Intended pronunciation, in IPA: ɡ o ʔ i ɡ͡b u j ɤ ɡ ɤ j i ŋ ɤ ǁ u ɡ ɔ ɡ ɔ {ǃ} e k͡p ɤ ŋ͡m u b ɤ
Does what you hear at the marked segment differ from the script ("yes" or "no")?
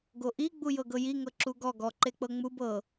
no